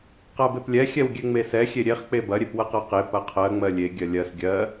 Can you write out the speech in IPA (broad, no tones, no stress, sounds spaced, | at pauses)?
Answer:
q a b e p lʲ ɛ xʲ ɛ w ɡʲ ɛ ŋ͡m e s ɛ xʲ e ɾʲ e χ k͡p e b ɐ ɾʲ e p w ɐ q a q e p ɐ qʰ ɜ ŋ͡m ɜ lʲ e ɡʲ ɜ lʲ ɜ s ɡʲ ɜ